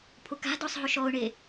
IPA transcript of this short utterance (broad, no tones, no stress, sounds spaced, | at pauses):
pʰ ʊ k a̤ d ɔ sˤ ɦ ʊ ʃ ɔ ʊ̯ ɳ e